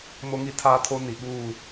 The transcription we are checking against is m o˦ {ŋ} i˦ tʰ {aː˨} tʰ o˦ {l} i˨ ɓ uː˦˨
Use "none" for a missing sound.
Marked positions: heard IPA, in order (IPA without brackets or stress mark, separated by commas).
ŋ, aː˦, n